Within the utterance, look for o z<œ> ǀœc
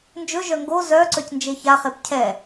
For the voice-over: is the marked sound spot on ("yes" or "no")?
yes